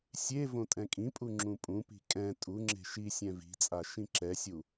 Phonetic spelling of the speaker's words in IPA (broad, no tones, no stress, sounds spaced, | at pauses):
sʲ e v õ tʼ ɛ̃ kʼ ĩ pʼ u ŋ͡ǁ ũ pʼ ũ p i̤ kʼ ɛ̃ tʼ u ŋ͡ǁ e̤ ʃ i sʲ ɛ̃ v i̤ t͡sʼ a ʃ ĩ ǁ ɛ sʲ u